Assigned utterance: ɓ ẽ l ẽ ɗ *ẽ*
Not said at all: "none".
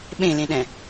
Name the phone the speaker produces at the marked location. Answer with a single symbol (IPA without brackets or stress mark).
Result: ɛ̃